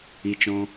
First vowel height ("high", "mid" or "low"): high